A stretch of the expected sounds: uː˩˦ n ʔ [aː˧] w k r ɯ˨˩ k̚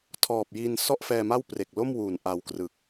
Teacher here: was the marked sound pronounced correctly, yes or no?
no